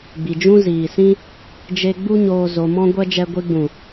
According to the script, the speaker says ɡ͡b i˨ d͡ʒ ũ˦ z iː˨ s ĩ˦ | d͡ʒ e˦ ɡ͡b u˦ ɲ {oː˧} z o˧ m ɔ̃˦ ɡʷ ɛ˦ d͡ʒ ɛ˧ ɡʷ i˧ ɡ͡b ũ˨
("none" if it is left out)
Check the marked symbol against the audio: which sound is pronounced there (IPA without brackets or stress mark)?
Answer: oː˧